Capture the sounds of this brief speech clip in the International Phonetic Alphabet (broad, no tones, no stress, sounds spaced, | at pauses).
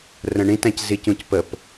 r ə̃ ɳ ĩ t æ̃ c z i c ũ c p ə p